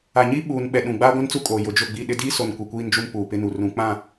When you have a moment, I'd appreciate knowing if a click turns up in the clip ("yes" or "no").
no